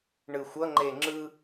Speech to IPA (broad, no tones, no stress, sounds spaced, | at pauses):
ɳ ɯ xʷ ʌ ŋ͡ǃ e ŋ͡ǁ ɯ